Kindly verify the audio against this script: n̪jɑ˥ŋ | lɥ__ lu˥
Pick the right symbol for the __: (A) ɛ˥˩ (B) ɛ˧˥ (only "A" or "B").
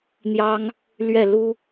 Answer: A